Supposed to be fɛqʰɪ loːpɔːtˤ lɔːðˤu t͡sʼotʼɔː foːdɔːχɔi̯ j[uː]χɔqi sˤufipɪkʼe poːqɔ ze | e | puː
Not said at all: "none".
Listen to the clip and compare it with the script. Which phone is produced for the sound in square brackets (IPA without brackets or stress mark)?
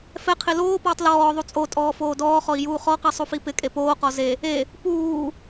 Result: uː